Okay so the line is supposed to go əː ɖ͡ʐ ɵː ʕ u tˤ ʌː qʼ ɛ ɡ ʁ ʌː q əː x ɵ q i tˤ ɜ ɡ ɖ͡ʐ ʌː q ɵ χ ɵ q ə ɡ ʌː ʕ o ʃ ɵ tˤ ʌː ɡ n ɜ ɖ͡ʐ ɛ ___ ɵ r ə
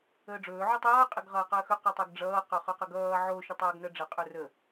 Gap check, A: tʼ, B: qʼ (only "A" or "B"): B